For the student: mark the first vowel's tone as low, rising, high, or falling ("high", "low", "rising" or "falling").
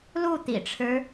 falling